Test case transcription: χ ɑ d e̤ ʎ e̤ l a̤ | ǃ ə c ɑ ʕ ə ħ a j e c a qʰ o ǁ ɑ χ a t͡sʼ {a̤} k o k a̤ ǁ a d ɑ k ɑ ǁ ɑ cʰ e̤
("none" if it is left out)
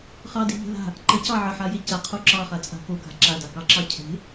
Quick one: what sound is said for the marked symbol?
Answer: a̤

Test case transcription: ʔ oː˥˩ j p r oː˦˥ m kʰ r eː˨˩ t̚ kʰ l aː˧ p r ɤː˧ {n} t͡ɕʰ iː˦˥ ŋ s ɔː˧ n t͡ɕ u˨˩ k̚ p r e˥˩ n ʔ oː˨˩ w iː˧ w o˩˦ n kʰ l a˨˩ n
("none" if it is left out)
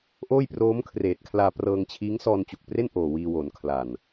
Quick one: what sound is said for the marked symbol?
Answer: ŋ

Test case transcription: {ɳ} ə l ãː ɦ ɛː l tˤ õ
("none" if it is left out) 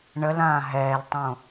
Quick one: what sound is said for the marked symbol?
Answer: ɳ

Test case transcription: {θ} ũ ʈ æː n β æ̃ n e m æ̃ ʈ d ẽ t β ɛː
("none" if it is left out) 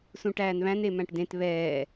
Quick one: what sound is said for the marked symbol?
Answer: s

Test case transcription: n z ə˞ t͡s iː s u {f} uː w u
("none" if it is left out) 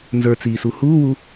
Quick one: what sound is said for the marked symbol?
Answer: h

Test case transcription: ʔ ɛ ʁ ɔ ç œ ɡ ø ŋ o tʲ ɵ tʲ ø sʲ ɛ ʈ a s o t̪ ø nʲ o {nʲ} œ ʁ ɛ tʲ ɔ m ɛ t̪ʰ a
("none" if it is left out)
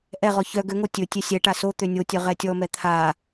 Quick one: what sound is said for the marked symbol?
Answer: tʲ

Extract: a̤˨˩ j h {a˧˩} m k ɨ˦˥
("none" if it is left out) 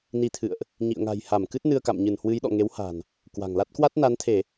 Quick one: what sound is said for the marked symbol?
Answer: a˧˩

